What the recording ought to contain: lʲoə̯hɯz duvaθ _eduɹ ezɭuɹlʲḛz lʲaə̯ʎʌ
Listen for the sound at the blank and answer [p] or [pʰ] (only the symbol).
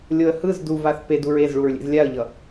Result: p